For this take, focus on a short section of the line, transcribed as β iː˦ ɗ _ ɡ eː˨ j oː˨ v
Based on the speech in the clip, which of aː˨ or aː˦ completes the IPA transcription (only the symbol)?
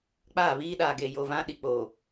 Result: aː˨